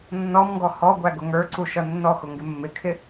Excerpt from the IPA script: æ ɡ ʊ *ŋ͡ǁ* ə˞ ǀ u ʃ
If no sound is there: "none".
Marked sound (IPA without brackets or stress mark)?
ŋ